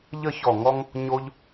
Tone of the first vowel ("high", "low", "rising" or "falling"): falling